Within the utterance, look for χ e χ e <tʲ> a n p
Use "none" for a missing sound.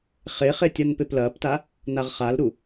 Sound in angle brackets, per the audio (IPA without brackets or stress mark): tʲ